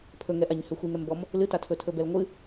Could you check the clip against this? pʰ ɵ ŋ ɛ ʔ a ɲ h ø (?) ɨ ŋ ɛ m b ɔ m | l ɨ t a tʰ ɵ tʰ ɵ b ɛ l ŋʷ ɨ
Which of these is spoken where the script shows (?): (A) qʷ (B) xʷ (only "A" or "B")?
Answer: B